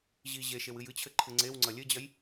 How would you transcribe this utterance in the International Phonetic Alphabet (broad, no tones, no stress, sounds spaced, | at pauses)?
ʑ i ʑ e ʃ e w ɨ j ɨ t͡ɕʰ ɘ ǃʰ ɨ ŋ͡ǀ e w ŋ͡ǀ ɐ lʲ ɘ d͡ʑ ɐ j